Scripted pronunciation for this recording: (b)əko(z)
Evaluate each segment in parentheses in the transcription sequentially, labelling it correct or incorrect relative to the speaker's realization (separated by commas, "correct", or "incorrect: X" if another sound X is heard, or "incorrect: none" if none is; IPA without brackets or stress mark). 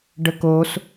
incorrect: ɖ, incorrect: s